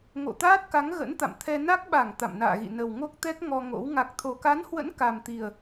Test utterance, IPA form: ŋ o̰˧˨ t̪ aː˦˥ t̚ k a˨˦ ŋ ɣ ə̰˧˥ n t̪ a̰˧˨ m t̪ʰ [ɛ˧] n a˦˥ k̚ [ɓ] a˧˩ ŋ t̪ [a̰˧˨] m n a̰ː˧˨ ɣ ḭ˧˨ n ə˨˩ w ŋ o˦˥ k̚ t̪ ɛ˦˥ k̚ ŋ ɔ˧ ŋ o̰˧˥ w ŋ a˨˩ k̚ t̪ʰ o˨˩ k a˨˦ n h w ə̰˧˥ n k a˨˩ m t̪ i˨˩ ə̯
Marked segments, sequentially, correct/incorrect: correct, correct, correct

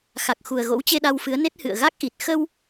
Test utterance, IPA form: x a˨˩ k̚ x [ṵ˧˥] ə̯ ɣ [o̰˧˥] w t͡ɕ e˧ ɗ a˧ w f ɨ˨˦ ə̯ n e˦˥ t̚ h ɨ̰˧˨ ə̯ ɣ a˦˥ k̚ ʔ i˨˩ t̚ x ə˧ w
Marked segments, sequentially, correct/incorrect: incorrect, correct

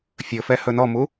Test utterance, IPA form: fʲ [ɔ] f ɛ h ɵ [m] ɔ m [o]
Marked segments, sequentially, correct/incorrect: incorrect, incorrect, incorrect

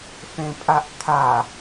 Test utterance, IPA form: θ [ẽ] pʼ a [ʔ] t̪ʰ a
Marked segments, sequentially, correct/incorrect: correct, correct

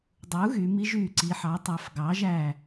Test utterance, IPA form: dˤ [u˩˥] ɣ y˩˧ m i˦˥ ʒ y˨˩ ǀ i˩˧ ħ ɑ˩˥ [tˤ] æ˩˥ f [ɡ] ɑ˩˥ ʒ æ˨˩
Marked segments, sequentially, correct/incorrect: correct, correct, correct

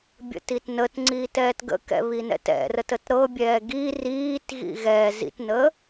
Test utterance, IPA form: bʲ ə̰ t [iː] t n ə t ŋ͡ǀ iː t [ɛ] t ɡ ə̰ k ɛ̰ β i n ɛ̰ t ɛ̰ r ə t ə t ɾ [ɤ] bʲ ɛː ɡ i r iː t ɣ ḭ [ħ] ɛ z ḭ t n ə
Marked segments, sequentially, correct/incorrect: incorrect, incorrect, correct, incorrect

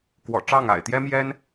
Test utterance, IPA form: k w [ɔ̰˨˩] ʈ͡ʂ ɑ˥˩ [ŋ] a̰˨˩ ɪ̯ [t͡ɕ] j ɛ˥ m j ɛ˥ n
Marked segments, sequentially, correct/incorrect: correct, correct, incorrect

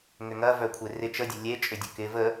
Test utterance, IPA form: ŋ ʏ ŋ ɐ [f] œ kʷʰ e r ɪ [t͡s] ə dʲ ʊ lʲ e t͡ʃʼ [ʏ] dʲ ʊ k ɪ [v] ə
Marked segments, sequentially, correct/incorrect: incorrect, incorrect, correct, correct

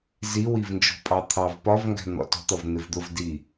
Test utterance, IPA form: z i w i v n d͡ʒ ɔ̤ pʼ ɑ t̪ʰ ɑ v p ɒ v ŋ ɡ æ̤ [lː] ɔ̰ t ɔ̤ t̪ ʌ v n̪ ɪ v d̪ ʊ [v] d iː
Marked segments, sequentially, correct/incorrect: incorrect, correct

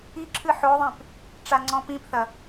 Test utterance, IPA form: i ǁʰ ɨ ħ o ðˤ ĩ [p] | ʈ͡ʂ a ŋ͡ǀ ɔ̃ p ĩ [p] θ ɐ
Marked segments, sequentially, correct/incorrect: correct, correct

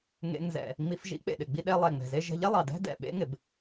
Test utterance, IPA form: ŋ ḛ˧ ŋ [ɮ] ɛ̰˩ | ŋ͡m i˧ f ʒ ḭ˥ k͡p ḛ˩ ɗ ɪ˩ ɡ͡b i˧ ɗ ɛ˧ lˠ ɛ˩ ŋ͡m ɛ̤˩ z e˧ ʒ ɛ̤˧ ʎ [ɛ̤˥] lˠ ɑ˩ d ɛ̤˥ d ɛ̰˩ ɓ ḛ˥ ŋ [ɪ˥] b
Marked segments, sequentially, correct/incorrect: incorrect, incorrect, incorrect

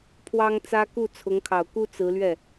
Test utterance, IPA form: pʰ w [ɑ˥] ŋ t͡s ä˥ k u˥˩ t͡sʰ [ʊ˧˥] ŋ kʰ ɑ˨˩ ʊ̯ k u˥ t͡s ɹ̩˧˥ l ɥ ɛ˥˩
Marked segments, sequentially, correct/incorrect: correct, correct

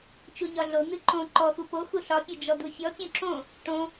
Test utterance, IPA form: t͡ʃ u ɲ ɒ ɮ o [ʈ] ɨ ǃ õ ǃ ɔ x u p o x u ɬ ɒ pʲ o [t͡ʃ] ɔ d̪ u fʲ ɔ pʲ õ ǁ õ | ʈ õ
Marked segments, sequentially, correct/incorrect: incorrect, incorrect

